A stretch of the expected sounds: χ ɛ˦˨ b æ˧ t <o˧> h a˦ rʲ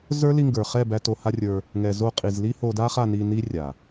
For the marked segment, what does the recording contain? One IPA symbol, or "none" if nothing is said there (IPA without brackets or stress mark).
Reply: o˧